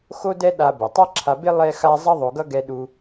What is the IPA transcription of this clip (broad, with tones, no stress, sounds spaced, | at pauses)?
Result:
x o˥ d ɛ˥ ɗ a˧ b ɛ˩ tˤ a˥ ǁʰ a˧ b e˥ lˠ ɛ˥ x a˥ zˤ ʌ˥ ðˤ o˧ ɡ ʌ˥ ɡ ɛ˧ ɗ u˧